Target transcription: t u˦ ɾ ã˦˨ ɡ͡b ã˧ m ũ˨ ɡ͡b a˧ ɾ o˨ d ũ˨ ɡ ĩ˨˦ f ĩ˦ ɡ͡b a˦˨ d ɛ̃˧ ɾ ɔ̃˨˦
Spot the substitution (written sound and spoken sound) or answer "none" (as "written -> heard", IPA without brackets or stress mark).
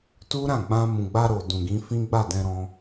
ɔ̃˨˦ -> ɔ̃˧